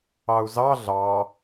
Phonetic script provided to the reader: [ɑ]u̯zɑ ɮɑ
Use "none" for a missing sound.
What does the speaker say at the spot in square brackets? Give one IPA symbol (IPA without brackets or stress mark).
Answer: ɑ